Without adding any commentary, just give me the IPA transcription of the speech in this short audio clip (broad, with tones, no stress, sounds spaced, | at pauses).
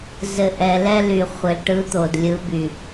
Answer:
z ɘ˨ ʔ ɛ˨ l ɛ˦ l y˨ χʷ ɘ˨ l ʈ ɯ˨˦ t̪ o˨ d lʲ ɯ˨˦ b y˨